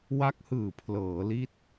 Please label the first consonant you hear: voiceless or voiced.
voiced